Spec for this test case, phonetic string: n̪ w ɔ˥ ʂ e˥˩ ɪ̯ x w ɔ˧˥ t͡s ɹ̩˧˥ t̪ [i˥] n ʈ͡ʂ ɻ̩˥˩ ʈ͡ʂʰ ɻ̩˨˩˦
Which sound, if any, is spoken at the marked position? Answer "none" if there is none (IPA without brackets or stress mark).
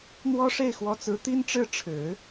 i˥